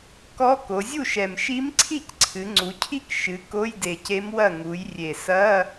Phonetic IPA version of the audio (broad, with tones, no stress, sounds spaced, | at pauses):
k ɔ˧˥ k o˩˧ zʲ u˥˩ ʃ ɛ˨˩ m ʃ i˧˥ m ǀʰ i˥˩ c ǀʰ ɨ˩˧ ŋ͡ǀ u˩˧ cʰ i˥˩ k ʃ ɨ˩˧ k o˧˥˧ j d e˨˩ c e˧˥ m w ɐ˥˩ ŋ u˩˧ j rʲ e˨˩ s ɐ˧˥˧